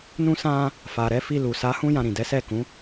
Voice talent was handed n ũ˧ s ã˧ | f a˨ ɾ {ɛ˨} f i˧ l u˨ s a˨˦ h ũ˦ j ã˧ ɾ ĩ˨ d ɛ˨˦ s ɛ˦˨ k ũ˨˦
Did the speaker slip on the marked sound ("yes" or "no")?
yes